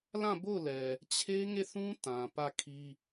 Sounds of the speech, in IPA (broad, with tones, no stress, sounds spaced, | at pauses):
l ã˦˨ b o˦˨ ʊ̯ l ɛ˨ | t͡ɕʰ e˦ ŋ e˦˨ θ ũ˦ t ã˨ p ä˦˨ kʰ i˦